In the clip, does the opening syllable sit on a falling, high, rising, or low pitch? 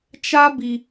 high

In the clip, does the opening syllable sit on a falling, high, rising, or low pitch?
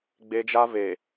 high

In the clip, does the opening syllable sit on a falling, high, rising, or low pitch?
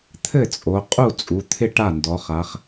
falling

